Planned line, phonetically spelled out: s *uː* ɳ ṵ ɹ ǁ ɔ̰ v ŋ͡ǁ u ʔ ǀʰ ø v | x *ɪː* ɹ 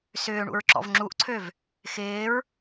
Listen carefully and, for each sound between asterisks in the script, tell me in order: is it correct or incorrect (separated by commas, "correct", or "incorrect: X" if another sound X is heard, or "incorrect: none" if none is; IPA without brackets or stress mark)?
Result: incorrect: ʏː, correct